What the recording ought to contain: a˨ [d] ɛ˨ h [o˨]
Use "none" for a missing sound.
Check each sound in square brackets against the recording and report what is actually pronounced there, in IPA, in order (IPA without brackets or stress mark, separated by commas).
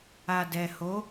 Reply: d, o˨˦